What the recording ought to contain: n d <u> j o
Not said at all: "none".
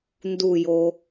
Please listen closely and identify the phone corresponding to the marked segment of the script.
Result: u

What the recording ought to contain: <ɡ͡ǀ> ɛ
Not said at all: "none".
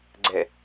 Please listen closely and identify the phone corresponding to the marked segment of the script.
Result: ɡ͡ǀ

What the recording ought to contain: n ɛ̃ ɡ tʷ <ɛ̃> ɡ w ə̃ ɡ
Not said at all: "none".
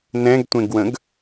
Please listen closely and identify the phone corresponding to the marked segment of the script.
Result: ẽ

